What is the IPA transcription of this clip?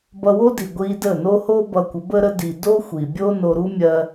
b ʌ˧ w o˦ d i˨ ɡʷ i˧ d ə˦˨ n o˦ h o˦ b ʌ˧ kʷ ə˨˦ b ə˦ ɾ ə˦ d i˧ d o˦ xʷ i˨ bʲ o˦ n o˧ ɾ u˦ mʲ ɜ˧

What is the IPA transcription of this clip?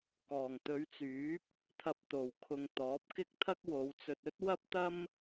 k ɔː˨˩ ŋ t̪ ɵ˨˧ ɥ t͡s yː˨˥ p̚ | t̪ʰ ɐ˧ p̚ t̪ o˨ w kʰ ʊ˧ ŋ t̪ ɔː˨˥ p̚ k ɪ˥ k̚ t̪ʰ ɐ˥ k̚ w o˨˧ w t͡s ɵ˧ t̚ ɵ˥ t̚ w ɐ˥ p̚ t̪ ɐ˥ m

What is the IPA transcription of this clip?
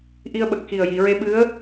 ʔ i˧ ə̯ ɓ ə˨˩ k̚ x i˨˩ ə̯ j i˨˩˨ ɹ e˧ ɓ ɨ˧˥ ə̯

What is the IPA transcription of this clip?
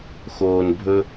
x oː˨ n bʱ ɵ˧

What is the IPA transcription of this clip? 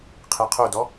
qʰ e qʰ o d ɔ

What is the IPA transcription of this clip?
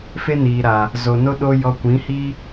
f e˦ n iː˨ ɾ a˨ | z o˨ n o˦ ɗ o˦ j ɔ˧ kʷ ĩ˨˦ h i˦

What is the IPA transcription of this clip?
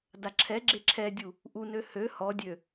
d a ǁʰ ɛ ɡ͡ǁ e ǁʰ ɛ dʲ u | ʔ u n ø h ø h ɔ dʲ ø

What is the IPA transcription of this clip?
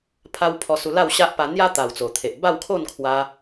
pʰ a˧ w pʰ ɔ˧ s u˧ l a˥˧ w ɕ a˦ ʔ p a˧ n̪ j a˦ t̪ a˨˩ w t͡s o˨˩ t̪ʰ e˨ ʔ b a˥˧ w kʰ o˥˧ n kʰ w a˧

